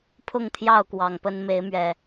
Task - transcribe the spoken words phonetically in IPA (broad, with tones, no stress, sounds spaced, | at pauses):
pʰ ʊ˥˨ ŋ t̪ʰ j ɑ˥˨ ʊ̯ k w ɑ˨˩ ŋ p ə˦ n m e˨˦ ɪ̯ m ɥ ɛ˨˩